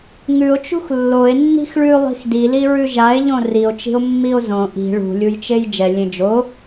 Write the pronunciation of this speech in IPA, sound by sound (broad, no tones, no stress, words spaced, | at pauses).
ŋʉo̯t͡ʃṳx lːoe̯ nːi̤xɭʉ lˠi̤xdiliɹʉ ʒae̯ʎõ rio̯t͡ʃi̤o̯ mːio̯zõ ʔi̤ ɭṳlʲujt͡ʃej d͡ʒɛ lʲẽd͡ʒo